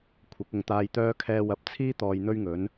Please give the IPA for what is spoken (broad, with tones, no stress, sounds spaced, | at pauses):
kʷʰ ɐ˨˥ k̚ ʊ˨ ŋ t̪ aː˧ j t̪ œː˥ kʰ ɛː˧ w ɐ˨˥ p̚ t͡sʰ iː˥ t̪ ɔː˧ j n̪ ɵ˥ ɥ ŋ ɵ˨˥ n